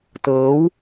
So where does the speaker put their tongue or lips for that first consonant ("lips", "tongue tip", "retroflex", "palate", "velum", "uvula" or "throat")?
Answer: tongue tip